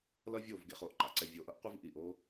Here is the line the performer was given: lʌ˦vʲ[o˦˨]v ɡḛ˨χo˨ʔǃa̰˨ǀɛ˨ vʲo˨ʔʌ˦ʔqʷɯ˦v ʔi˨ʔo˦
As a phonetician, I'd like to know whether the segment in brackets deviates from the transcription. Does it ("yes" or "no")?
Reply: no